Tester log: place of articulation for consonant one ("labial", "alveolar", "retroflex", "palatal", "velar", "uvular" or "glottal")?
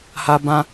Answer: glottal